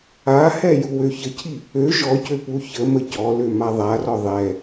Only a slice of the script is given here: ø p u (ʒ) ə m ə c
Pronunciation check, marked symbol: incorrect: ç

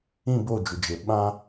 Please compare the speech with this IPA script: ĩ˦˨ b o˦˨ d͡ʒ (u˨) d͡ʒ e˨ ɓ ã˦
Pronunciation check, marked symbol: correct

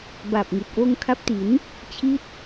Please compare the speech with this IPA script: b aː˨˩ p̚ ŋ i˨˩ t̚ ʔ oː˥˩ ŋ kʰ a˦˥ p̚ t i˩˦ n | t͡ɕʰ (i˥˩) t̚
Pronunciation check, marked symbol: correct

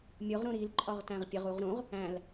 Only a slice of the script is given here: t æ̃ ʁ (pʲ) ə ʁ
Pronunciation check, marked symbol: correct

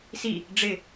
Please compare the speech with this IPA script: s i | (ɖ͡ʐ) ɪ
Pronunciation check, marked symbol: correct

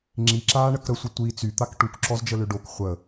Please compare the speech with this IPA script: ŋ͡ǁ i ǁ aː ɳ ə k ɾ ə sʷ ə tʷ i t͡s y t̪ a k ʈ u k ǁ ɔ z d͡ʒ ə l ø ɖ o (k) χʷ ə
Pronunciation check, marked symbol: correct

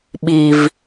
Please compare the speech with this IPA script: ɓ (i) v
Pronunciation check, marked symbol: correct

